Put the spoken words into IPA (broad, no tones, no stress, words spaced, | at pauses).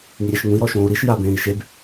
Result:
ŋiɾʲɛʃŋũi̯ ɾɔʃõːu̯ɾiʃ jabẽːi̯ʃeb